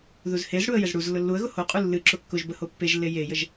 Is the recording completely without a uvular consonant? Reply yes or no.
no